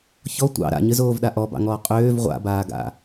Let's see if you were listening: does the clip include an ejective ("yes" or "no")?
yes